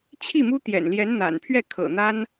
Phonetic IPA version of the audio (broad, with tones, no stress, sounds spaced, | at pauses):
t͡ɕʰ i˥˩ m u˥ t̪ j ɛ̰˨˩ n l j ɛ˧˥ n n̪ a̰˨˩ n pʰ ɥ ɛ˥˩ kʰ ɤ̰˨˩ n̪ a˥ n